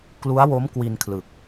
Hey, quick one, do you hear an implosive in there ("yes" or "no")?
no